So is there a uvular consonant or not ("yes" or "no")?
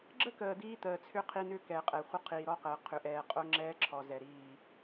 yes